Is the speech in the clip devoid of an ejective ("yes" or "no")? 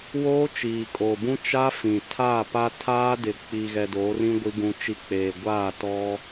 no